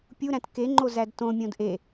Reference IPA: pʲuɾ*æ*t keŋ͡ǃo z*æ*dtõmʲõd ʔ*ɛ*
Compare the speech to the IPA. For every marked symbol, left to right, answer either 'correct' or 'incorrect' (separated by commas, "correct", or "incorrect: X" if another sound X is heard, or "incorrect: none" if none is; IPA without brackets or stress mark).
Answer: incorrect: æ̃, correct, incorrect: e